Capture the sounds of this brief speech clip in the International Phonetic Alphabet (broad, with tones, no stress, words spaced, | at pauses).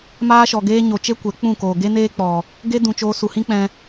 maː˦ʃɔ˨ ɡeː˦ ɲo˨t͡ʃe˦ kʷɛ˨˦k͡pũ˦˨koː˨ ɡe˦ neː˦k͡pɔ˨ | ɡe˦dũ˨t͡ʃoː˧ su˨hĩ˦k͡pɛ̃˧